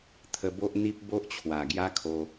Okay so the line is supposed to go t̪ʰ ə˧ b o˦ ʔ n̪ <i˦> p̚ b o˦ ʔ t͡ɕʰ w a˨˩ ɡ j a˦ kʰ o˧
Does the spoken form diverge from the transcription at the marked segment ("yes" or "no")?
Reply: no